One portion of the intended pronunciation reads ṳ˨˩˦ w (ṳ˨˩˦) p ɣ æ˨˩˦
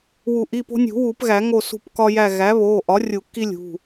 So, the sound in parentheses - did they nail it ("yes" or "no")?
no